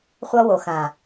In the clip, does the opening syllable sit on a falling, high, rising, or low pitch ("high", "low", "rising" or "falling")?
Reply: high